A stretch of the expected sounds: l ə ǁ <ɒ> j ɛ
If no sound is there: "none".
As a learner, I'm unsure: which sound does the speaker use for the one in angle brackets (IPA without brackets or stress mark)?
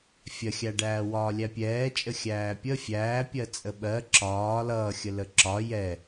ɒ